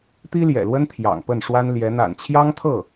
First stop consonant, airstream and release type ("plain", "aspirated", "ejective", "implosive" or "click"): plain